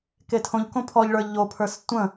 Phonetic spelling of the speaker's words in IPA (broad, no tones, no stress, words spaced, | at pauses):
ketʰõʎkõ pʰɔʎɭə˞ ʎopʰə˞s tʷə̃